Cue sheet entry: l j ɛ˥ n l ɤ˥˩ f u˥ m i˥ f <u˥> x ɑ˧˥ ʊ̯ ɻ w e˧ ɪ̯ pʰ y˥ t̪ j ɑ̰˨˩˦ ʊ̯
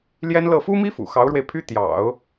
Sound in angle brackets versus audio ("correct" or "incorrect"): incorrect